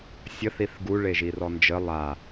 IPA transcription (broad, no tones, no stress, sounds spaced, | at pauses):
sʲ ə θ i θ ɡ u ɭ e ʒ i r ɔ n d͡ʒ ə lˠ a